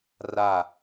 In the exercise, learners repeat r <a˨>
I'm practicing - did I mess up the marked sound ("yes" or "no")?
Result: yes